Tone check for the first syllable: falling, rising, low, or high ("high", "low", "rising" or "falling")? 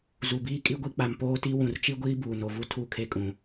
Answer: low